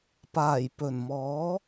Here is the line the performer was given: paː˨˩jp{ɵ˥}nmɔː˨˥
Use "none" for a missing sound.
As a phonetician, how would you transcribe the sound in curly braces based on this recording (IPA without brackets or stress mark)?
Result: ɵ˨˩